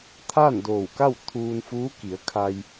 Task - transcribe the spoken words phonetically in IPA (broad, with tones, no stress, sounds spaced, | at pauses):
t̪ʰ aː˥˨ n d oː˧˩ w k a˥˨ w t̪ʰ uː˧ n f uː˧˥ k i˩˧ ə̯ kʰ a˧ j